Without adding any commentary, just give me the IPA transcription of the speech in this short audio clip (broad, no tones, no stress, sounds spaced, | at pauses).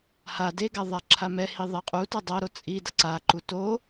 h a d e ɡ a ðˤ a ǁʰ a m ɛ h i ðˤ ɛ qʼ u t ʌ dˤ ʌ ɾ o t͡sʼ i d ʌ ǀ a ǃ u t o